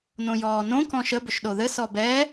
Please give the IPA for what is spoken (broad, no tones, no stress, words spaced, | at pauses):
nõjɔːnõ kɔ̃ʃə bʏʃɗoðɘ sɔbɛ